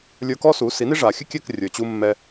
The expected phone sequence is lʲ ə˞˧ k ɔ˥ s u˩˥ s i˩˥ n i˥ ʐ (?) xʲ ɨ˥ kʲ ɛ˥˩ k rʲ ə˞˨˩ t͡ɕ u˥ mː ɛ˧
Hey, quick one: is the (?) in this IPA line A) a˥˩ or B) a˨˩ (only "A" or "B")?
B